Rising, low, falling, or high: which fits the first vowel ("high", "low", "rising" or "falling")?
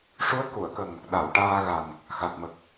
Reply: rising